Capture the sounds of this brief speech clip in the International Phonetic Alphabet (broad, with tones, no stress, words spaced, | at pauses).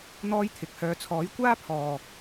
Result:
n̪ɔː˥jt̪ʰɪ˨k̚hœː˧ t͡sʰɔː˨˥jkʷaː˥pʰɔː˨